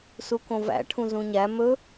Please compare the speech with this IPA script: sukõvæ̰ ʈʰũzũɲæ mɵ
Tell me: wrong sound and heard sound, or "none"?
none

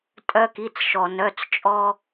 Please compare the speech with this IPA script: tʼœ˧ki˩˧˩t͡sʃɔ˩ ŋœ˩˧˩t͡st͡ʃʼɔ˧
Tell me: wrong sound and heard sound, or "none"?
ŋ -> n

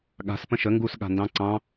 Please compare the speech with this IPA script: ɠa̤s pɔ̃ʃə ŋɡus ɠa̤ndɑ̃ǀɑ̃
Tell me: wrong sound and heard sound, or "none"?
ɔ̃ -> ə̃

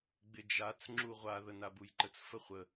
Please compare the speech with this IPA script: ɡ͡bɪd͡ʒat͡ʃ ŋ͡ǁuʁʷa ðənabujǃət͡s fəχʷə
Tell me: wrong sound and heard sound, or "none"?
t͡ʃ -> t͡s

